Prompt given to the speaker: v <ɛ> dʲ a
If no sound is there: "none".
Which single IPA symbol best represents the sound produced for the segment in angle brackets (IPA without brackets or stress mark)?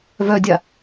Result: œ